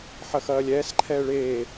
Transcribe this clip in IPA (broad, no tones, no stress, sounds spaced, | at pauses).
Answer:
ħ ɐ x ɐː lʲ ɛː s ǃʰ ɛː ɭ eː